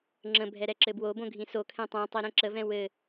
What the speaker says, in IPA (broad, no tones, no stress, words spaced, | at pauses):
ŋ͡ǁə̃bʱɛ ɾɛǁɘbwobõ ɡʱĩsokʰɛ̃ tˤɛ̃tˤi ɾɛ̃ǁəvɛ̃ wɘ